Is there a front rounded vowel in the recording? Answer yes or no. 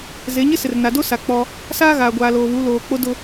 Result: no